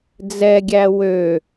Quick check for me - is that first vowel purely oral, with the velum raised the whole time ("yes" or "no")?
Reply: yes